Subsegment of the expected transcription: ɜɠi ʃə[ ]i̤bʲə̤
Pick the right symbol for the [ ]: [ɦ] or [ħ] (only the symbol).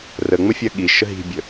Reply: ɦ